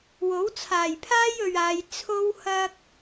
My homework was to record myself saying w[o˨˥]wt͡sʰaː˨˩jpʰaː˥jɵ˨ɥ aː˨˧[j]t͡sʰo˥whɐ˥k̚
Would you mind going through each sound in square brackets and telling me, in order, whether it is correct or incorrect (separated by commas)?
correct, correct